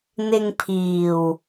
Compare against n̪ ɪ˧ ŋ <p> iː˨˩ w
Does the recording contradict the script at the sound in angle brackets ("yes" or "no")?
yes